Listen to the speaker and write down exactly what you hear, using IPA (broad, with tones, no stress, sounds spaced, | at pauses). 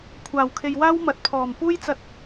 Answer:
kʷʰ aː˨˩ w kʰ e˨ j w aː˥ w m ɐ˨ t̚ pʰ ɔː˨˩ m p uː˥ j t͡s ɐ˧ t̚